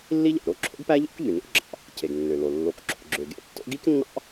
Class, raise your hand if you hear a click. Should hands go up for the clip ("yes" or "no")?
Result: yes